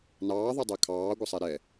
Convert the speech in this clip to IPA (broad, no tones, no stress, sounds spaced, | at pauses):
n ɑː ðˤ ɜ dˤ ɜ kʰ ɑː ɡʷ ə sˤ ɛ ɾ ɛ